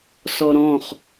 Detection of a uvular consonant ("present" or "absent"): present